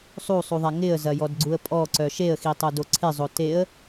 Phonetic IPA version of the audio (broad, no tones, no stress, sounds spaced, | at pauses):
sˤ u sˤ u ðˤ a ŋ ɪ ə̯ z ɐ j ɔ d ɡ͡ǀ u ə̯ pʼ ɔ ǀ œ ʃ e ə̯ x i tˤ o d o ǀʰ ɪ zˤ o t e ə̯